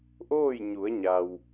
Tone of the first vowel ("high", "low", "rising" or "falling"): falling